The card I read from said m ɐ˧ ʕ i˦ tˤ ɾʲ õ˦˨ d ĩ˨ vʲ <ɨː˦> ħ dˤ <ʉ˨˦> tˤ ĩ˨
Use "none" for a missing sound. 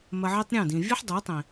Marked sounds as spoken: ɨ˦, u˨˦

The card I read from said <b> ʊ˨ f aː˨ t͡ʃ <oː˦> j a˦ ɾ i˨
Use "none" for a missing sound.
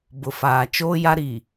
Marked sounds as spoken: b, oː˦

